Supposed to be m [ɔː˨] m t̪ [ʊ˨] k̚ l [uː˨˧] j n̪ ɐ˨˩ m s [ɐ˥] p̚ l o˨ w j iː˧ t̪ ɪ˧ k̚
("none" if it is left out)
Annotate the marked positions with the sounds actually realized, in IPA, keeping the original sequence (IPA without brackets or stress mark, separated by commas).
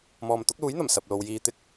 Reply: ɔː˨, ʊ˨˥, uː˨˥, ɐ˨